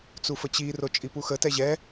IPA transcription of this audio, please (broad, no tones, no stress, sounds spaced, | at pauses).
t͡s u f ə t͡ɕ i r o t͡ʃʼ i p u x ə t ɛ ʑ ɛ